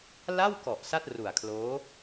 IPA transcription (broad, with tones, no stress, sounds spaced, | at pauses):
l a˥˩ w k ɔ˨˩ ʔ s a˥˩ t̚ r u˨˩ a̯ kʰ l oː˦˥